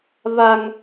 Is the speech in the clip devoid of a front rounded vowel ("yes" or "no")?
yes